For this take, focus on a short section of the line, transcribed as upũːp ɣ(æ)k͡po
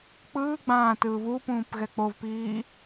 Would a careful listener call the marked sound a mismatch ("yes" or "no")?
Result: yes